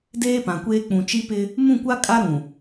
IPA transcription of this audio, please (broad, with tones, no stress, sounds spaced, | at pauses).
d eː˦ p ã˨ kʷ eː˦ k͡p ũ˨ t͡ʃ i˦ p ɪ˦ | m ũ˦˨ kʷ a˦ kʼ a˦ ɾ ũ˨